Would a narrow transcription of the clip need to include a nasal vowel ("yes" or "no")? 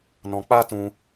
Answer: yes